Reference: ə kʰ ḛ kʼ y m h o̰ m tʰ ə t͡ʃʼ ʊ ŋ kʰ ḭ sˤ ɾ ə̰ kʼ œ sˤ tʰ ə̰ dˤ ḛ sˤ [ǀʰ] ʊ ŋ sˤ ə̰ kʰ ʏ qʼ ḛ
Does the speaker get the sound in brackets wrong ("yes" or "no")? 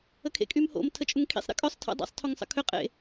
yes